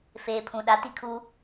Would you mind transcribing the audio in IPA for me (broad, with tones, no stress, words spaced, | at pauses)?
feː˨pʰũ˨ ɗa˨˦ti˦ kʰuː˦